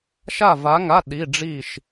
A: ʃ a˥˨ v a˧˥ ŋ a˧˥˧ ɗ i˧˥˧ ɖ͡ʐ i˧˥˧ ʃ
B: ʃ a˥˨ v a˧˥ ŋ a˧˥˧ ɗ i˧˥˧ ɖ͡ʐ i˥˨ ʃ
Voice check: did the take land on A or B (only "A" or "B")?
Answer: B